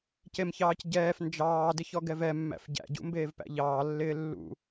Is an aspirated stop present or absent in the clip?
absent